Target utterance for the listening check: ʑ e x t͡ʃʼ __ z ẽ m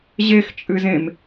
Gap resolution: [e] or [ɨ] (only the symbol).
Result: ɨ